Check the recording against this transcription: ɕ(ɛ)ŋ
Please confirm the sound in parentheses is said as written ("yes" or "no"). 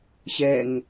yes